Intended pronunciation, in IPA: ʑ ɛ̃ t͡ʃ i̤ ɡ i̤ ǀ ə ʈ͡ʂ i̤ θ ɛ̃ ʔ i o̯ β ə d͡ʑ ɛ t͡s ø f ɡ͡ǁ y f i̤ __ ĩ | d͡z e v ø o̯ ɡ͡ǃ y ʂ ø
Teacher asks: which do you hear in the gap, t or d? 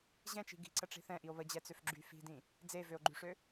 d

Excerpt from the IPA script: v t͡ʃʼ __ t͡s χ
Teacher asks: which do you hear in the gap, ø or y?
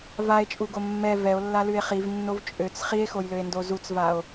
ø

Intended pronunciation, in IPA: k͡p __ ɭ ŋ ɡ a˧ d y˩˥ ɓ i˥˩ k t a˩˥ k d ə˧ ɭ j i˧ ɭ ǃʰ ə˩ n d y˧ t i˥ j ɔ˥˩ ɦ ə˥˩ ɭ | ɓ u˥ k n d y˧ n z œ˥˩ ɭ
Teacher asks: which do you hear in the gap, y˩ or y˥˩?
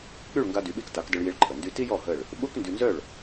y˥˩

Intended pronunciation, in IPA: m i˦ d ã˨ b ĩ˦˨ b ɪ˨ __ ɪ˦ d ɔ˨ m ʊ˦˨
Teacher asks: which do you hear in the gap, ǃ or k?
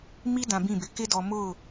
k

